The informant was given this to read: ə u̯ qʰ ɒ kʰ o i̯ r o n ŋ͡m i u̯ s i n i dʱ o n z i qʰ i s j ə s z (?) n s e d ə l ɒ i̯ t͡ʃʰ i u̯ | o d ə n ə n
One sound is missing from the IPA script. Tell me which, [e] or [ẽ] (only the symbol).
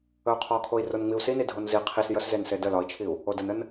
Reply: e